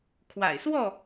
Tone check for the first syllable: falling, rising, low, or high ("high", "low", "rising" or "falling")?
low